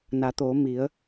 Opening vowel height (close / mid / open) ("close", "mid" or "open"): open